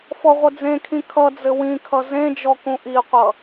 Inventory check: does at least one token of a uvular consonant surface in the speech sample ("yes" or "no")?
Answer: yes